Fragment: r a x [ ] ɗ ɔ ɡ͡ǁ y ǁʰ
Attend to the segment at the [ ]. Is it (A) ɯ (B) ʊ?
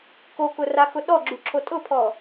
B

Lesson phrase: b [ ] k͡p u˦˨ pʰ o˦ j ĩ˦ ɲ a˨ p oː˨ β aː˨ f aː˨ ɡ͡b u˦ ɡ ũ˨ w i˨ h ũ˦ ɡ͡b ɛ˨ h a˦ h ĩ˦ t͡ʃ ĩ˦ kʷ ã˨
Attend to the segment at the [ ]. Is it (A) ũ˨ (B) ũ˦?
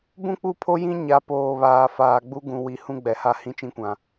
B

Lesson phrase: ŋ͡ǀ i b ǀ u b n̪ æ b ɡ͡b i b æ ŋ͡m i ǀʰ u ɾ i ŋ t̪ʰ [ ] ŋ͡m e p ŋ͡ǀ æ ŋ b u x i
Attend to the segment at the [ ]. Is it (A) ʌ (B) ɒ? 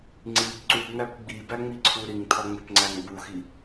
B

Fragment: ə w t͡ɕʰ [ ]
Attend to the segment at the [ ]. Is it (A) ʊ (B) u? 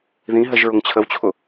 A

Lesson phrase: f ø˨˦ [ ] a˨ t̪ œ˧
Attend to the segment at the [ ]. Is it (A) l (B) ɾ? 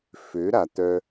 B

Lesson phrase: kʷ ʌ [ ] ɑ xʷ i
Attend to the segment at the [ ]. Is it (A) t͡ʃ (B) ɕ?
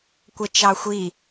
A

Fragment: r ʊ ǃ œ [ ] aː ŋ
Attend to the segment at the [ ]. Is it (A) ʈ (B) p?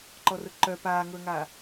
B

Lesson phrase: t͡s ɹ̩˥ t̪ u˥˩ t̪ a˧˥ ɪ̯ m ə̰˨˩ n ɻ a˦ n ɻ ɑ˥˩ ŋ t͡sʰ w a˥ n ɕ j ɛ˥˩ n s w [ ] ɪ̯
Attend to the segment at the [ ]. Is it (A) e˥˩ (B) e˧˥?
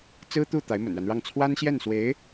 B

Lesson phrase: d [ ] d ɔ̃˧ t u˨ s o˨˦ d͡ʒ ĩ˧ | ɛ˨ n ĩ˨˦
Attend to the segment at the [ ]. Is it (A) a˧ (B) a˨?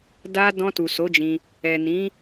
A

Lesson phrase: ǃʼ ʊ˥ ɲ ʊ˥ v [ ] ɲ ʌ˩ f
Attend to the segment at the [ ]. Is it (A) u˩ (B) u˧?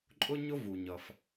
A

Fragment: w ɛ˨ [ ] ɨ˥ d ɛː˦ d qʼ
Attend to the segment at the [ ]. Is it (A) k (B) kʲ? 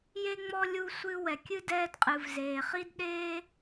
B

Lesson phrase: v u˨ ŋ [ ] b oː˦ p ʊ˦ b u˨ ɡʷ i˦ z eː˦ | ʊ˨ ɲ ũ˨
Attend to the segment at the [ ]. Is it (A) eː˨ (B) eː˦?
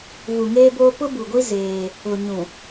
B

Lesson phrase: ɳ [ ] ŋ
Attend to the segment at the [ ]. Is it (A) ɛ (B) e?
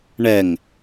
A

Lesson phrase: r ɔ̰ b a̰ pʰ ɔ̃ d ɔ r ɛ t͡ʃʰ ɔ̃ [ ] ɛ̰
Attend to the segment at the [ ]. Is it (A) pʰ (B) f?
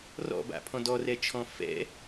B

